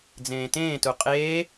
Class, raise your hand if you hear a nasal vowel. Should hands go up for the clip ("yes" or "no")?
yes